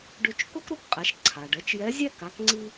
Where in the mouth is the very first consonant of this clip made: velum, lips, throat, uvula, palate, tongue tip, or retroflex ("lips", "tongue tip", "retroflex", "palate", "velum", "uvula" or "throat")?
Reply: retroflex